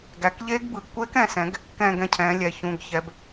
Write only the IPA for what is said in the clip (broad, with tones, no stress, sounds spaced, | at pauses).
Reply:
ɡ æ˩˧ k ʎ eː˦˥ ɡ b ɯ˩˧ ɡ kʷ eː˦˥ k ɛ̃˩˥ s ɛ̃˩˥ ɡ | k ɛ̃ː˥˧ ɡ ɛ̃˥˧ cʰ ɛ̃ː˩˥ lʲ ɛ˩˧˩ ç ũ˩˧˩ ɡ ç ɛ˩˧ b